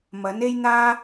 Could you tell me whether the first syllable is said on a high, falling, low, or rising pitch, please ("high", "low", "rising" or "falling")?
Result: rising